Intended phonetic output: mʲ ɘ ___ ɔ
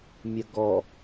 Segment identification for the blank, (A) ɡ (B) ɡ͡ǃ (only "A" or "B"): A